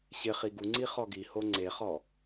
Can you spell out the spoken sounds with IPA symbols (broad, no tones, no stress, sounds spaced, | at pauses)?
ɕ ɪ χ i ɡ u ŋ͡ǀ i χ ɔ ɡ i h o ŋ͡ǀ e χ ɔ